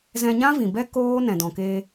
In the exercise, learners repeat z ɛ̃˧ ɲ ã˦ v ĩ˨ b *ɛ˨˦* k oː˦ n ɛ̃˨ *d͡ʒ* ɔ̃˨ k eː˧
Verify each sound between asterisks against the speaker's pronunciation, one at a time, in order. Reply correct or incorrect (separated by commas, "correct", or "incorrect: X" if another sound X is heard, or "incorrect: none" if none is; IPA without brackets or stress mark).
incorrect: ɛ˦, incorrect: d